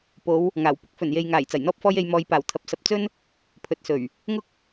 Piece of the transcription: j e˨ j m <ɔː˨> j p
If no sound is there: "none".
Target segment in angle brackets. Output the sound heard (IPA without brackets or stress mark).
ɔː˨